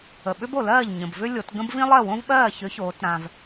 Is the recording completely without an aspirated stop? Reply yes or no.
yes